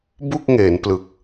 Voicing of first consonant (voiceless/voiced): voiced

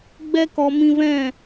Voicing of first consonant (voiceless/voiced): voiced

